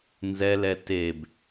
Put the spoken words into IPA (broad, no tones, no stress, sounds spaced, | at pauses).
n z ɛ l ɛ t e b